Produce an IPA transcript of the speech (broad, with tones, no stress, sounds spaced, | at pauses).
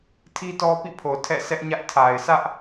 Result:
tʰ i˦ t ɔ˦ p ḭ˦˨ pʰ o˨ tʰ ɛ̰˦˨ s ɛ˦ ʔ ɲ ä˦ ʔ tʰ a˨ ɪ̯ sʰ ä˦ ʔ